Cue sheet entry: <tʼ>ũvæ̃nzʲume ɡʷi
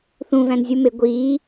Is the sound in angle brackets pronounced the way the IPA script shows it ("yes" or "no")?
no